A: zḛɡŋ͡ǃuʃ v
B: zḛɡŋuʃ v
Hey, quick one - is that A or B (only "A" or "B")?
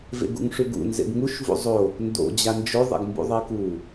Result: B